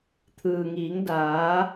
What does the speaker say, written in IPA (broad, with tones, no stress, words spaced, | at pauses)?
t̪ʰɯː˩ŋiː˩˧ŋ daː˩˧